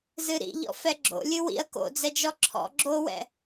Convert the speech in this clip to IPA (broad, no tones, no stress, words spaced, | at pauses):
zɨɾḭ ʎɔ̰fɛɡ͡ǁo̰ lʲɨwḭɐ̯ ko̰d͡zɛd͡ʒɔ ǁʰɔ̰ ɡ͡ǁowɛ̰